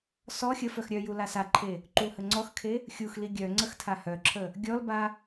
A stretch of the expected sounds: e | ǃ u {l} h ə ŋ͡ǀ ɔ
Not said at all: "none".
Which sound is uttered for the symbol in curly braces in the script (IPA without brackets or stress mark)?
l